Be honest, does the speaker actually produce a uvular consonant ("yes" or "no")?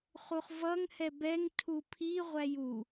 yes